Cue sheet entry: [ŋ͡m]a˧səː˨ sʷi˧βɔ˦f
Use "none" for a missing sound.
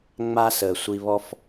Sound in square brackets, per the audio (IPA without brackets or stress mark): ŋ͡m